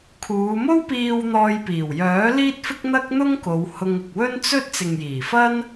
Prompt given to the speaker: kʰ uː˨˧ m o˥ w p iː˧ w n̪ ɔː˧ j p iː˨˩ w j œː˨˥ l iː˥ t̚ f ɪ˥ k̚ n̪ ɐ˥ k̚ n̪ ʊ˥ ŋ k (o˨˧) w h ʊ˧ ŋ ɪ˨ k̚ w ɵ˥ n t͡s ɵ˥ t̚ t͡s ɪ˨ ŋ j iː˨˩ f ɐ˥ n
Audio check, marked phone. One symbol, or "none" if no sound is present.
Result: o˨˧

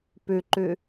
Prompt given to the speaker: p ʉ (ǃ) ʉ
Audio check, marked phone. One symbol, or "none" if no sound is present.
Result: ǃ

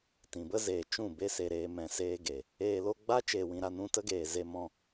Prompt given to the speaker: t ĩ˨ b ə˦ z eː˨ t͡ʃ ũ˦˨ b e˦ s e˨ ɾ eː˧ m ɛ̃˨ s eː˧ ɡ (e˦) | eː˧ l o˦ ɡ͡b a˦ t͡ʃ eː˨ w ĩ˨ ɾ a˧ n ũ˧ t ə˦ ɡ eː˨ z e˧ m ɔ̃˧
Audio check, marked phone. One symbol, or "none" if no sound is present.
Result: e˨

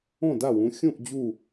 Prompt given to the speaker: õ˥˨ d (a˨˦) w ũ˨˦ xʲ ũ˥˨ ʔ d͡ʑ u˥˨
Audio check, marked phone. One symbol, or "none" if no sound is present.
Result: a˥˨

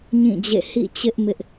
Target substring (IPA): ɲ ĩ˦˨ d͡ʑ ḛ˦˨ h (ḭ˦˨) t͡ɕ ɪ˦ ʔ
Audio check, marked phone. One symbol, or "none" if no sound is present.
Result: ḭ˦˨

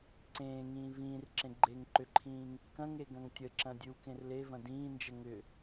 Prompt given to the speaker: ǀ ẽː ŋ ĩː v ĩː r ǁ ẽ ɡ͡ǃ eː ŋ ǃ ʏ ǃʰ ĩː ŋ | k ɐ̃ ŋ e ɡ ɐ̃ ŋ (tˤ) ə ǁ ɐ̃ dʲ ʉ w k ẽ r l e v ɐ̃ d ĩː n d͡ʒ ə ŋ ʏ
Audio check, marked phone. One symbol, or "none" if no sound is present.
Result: tʲ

